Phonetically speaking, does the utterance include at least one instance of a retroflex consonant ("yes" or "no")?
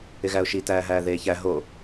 no